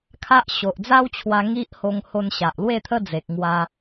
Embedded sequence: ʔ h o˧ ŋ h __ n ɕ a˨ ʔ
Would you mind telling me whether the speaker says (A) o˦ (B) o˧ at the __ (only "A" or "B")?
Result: B